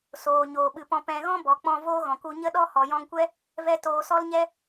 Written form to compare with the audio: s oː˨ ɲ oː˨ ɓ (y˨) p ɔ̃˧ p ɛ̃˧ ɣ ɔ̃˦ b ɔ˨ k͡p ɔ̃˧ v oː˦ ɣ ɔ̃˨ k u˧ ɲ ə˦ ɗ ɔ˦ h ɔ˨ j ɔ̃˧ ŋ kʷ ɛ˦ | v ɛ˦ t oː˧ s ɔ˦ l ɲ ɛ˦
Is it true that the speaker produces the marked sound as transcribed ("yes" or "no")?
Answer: no